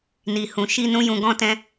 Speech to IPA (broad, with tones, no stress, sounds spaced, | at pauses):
n i˨ h ũ˨ ʃ i˧ n ũ˦ j ũ˧ ɡ ɔ̃˦ t ɛ̃˦